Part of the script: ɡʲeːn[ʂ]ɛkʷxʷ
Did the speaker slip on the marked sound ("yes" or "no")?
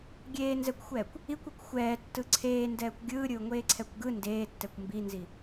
yes